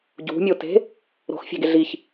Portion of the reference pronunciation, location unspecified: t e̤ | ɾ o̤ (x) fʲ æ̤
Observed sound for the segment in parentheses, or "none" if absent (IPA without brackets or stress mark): x